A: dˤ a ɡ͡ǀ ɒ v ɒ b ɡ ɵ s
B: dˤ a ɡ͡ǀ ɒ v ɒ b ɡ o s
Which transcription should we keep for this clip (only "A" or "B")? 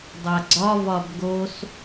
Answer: B